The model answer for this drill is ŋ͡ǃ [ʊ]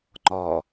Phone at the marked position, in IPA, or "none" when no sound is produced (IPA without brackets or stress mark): ɔ